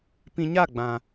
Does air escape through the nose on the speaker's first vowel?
yes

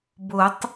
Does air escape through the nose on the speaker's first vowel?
no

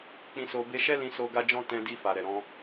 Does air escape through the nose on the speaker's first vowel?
yes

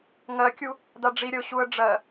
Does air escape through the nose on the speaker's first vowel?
no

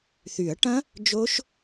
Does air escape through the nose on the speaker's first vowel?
no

